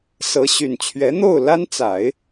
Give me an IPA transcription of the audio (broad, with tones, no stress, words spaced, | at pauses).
sɤ˧˥ɕy˨˩nt͡ɕʰɥɛ˧˥ n̪o˥˩ʊ̯ la˥nt͡sa˨˩˦ɪ̯